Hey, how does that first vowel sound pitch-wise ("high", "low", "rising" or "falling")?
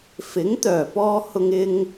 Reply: rising